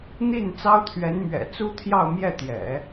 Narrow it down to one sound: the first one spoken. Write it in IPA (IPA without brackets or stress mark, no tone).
n̪